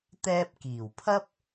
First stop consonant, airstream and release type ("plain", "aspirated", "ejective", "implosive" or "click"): plain